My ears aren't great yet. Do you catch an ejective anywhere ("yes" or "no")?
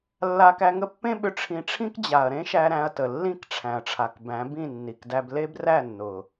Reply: no